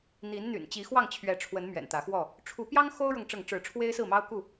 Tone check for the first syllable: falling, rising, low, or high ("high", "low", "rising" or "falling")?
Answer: rising